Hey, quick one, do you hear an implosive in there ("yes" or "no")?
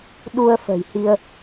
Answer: yes